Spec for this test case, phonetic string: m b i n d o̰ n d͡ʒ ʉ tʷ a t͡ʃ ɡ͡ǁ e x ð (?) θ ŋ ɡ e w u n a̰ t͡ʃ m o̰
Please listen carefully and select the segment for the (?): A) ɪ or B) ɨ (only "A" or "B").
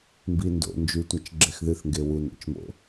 B